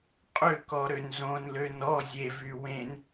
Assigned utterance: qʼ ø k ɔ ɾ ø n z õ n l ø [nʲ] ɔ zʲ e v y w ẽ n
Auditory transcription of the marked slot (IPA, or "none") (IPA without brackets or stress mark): n